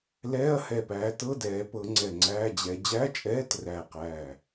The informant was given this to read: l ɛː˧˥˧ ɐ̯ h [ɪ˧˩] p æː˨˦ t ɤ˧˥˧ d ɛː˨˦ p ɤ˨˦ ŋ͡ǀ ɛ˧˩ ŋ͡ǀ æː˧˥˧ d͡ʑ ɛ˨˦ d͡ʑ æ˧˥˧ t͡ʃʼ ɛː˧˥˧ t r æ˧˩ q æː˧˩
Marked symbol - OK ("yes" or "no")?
no